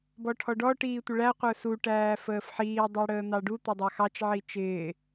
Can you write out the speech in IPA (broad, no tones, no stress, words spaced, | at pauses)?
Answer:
bɔʈʰɔɖɔ ʈiːtʷɪɭæ qʷə˞su ʈæːfəːfħiː dˤə˞ɽəːn̪ɑɖu t̪ɪdˤɑxɑt͡ʃ ʕit͡ʃɪː